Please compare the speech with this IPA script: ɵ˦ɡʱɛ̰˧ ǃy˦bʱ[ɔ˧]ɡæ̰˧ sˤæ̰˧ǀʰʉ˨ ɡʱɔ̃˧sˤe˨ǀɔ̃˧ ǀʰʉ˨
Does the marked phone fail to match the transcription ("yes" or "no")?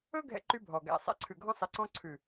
yes